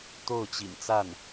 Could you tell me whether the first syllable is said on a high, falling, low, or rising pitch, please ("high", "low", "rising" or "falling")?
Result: falling